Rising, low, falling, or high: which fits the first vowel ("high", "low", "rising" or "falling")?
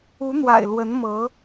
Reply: rising